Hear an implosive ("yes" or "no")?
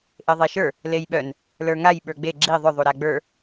yes